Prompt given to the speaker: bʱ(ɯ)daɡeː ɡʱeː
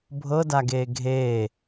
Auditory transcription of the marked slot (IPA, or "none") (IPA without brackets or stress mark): ɤ